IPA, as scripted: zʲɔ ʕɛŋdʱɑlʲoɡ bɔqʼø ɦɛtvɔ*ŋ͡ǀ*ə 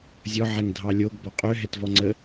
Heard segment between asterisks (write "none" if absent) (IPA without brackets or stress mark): ŋ͡ǀ